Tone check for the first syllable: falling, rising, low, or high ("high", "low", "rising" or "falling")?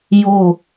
falling